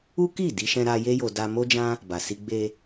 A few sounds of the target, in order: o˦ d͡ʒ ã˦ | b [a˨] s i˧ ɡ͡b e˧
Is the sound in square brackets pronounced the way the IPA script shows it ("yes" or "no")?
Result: yes